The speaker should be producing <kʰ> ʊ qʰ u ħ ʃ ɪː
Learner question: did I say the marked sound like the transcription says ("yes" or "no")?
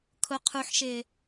yes